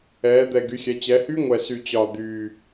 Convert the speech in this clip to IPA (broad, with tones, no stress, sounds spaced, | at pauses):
ɛː˩˧ d̪ ɛ˨˩ ɡ y˩˧ xʲ ɛ˩˧ t͡ɕ ɛ˩˧ h y˦˥ ŋʷ ɛ˨˩ s y˨˩ t͡ɕ ɒ˨˩ d̪ yː˨˩